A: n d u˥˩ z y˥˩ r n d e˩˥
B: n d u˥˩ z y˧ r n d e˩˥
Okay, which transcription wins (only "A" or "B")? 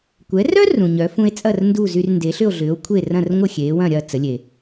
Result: B